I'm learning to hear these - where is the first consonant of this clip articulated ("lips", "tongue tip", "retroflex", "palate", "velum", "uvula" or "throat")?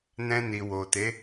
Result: tongue tip